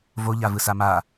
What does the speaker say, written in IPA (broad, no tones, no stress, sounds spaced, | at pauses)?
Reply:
v o ʎ a v ɯ s a m a